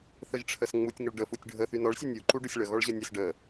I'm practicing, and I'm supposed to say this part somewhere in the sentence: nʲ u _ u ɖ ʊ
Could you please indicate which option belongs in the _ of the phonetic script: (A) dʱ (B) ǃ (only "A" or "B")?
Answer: B